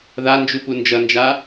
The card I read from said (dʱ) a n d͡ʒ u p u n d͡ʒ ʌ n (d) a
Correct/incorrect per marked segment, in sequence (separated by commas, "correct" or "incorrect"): incorrect, incorrect